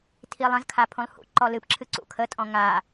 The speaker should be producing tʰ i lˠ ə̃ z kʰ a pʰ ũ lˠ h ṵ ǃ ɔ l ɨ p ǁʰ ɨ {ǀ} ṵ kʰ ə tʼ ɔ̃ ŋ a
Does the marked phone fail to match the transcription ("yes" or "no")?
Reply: no